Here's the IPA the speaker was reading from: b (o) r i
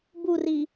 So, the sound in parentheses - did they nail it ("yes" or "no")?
no